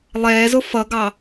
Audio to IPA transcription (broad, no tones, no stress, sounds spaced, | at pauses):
lˠ ɛː z ʊ f ʌ ɡ ɑ